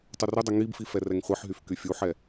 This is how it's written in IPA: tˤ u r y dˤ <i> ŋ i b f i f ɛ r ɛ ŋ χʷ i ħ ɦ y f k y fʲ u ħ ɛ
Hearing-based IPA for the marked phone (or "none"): y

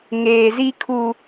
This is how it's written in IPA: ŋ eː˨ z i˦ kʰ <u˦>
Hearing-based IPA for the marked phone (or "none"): u˦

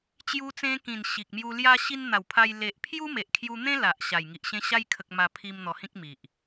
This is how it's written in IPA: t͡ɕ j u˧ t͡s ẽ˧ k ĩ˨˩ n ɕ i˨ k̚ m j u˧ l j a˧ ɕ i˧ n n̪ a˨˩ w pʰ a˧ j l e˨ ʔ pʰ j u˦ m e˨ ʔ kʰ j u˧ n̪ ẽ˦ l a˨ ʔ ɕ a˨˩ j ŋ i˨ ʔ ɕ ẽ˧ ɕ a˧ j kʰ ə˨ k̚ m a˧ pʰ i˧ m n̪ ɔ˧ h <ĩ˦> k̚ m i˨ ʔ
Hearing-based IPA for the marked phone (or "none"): ĩ˦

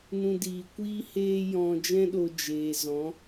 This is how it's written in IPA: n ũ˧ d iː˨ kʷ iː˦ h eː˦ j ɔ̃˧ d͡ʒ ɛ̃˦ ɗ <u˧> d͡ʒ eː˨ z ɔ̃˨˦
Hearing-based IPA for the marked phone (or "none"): o˧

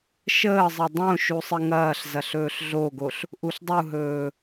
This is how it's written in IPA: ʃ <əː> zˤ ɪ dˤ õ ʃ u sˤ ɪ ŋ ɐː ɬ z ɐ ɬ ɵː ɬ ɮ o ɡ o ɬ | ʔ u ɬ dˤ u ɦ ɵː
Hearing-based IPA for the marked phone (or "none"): əː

